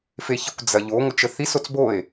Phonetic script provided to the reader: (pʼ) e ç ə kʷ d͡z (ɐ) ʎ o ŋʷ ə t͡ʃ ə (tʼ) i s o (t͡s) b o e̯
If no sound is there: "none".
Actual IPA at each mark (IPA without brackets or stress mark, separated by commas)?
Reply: f, ɐ, θ, t͡s